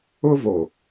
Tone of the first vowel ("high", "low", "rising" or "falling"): high